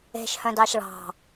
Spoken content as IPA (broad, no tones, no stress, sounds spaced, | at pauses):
e̤ ʃ h œ̃ d ɑ ʃ ɭ ɑ̤